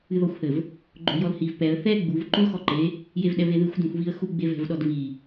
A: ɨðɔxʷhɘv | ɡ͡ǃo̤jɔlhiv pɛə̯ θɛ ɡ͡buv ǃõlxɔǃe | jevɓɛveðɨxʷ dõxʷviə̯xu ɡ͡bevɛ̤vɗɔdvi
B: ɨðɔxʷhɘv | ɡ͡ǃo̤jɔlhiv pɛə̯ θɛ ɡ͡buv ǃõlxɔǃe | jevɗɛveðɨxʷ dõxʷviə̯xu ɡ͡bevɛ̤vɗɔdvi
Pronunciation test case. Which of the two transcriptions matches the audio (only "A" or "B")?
B